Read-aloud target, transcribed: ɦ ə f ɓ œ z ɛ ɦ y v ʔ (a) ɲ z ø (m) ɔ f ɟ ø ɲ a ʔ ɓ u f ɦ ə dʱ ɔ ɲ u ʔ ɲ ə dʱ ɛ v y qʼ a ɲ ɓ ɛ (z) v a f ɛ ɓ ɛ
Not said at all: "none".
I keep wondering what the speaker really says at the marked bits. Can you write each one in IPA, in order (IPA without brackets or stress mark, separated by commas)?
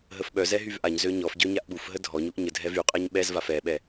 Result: a, ɲ, z